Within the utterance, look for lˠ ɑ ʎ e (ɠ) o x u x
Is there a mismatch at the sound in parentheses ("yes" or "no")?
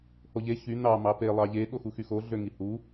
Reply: no